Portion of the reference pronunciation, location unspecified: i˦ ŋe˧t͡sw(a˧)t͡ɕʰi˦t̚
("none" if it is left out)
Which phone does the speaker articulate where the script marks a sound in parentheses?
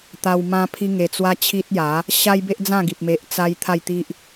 a˦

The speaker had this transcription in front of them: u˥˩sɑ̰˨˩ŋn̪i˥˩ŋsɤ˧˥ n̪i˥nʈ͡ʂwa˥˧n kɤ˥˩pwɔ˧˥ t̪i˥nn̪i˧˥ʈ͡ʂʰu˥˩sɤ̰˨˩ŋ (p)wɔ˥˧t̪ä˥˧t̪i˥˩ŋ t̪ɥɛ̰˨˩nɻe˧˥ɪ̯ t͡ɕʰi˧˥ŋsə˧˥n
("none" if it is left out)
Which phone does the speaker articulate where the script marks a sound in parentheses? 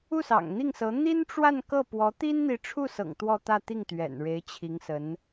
t̪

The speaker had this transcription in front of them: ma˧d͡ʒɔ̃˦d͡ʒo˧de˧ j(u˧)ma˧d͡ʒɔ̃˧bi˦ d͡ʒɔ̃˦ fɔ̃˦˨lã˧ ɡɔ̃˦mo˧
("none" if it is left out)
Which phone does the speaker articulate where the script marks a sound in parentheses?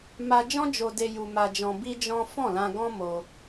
u˧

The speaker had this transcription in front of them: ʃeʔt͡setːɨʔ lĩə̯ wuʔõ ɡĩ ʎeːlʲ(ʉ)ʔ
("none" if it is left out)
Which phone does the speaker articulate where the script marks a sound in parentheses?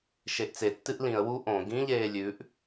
ʉ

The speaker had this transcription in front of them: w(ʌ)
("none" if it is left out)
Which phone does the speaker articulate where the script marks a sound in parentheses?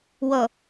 ʌ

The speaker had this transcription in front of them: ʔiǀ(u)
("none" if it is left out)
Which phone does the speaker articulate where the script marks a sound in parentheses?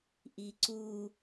u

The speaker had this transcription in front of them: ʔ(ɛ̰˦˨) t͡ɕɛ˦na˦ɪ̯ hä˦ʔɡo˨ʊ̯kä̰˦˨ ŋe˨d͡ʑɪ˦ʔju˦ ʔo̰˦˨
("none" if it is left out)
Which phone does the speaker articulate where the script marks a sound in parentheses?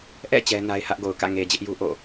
ɛ̰˦˨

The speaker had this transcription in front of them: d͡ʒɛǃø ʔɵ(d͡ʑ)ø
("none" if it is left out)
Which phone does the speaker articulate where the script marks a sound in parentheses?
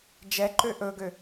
ɡ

